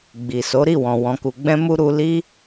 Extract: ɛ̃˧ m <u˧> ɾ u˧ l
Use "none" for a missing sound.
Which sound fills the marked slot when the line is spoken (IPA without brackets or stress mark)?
u˧